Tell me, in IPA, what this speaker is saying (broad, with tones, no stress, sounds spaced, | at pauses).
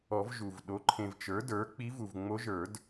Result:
ɔ˨˩˦ v ʒ u˨ v ɗ o˩˥ ǃʰ ẽ˨ v t͡ʃ ə˞˩˥ d ə˞˩˥ k͡p i˧˥ v u˨ v ŋ͡m o˧˥ ʒ ə˞˨˩˦ d